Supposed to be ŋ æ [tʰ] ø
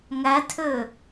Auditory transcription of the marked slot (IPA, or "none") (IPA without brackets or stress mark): tʰ